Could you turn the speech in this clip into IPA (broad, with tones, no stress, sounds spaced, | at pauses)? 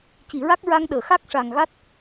c i˨˩˨ ɹ a˦˥ k̚ ɹ a˧ ŋ ɗ əː˨˩˨ x a˦˥ k̚ ʂ a˨˩ ŋ ɣ a˦˥ t̚